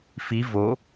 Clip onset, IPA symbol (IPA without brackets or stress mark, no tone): f